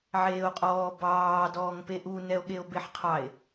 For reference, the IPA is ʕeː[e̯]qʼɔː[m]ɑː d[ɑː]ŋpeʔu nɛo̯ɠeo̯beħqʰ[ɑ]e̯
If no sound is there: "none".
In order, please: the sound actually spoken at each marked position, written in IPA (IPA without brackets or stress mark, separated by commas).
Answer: o̯, b, ɔː, ɑ